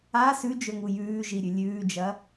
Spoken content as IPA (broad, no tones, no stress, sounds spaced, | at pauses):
a s ʉ d͡ʒ ɵ ŋ u j ʉː ʒ i ɾʲ ʉ lʲ ʉː d͡ʒ ɐ